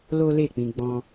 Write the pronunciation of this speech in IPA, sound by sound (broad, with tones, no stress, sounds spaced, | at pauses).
l o˦ l e˦˨ k͡p ĩ˧ ɡ͡b ɔ̃˧